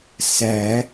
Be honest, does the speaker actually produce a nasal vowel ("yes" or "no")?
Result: no